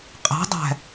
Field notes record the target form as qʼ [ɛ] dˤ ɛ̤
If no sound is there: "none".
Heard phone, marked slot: ɛ̤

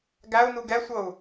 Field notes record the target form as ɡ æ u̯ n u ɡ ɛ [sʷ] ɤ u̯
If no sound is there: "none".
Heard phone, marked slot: sʷ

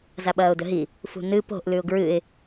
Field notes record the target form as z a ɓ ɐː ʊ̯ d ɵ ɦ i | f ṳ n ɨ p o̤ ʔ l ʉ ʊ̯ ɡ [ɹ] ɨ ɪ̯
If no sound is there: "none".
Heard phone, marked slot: ɹ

